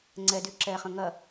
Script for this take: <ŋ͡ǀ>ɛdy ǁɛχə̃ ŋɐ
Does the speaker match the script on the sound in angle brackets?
yes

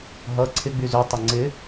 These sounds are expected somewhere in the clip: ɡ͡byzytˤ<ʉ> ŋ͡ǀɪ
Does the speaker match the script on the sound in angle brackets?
no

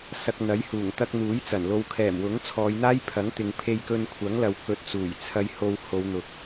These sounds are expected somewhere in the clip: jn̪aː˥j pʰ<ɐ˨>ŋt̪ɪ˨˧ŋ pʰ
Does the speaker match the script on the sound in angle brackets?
no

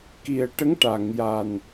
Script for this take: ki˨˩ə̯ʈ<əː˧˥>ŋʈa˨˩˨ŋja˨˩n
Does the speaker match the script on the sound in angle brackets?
no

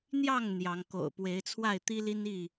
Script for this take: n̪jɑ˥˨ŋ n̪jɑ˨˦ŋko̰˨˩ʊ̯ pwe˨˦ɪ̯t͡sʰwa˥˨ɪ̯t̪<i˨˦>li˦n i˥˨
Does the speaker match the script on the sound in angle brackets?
no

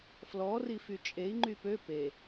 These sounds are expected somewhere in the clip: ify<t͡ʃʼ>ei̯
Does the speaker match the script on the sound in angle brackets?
yes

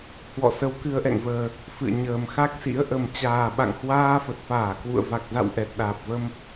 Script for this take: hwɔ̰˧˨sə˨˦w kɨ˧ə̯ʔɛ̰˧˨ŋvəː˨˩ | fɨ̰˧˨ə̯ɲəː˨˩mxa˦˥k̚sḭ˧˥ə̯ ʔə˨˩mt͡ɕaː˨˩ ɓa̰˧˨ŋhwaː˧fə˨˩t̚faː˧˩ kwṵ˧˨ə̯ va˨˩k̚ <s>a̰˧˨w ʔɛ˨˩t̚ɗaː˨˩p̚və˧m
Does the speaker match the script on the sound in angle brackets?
no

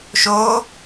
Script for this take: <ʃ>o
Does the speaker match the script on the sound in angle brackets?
yes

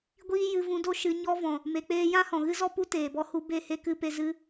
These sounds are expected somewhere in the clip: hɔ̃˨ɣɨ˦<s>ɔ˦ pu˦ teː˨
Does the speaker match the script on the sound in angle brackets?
no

